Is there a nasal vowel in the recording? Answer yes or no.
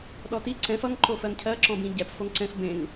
yes